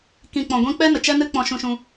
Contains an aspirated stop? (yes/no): no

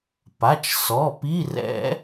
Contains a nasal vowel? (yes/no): no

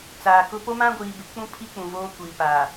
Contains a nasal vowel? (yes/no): yes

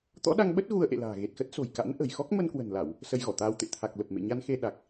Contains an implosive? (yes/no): yes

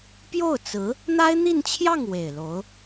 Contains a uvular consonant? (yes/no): no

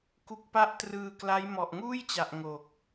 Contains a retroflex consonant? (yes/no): no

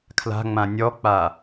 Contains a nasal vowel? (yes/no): yes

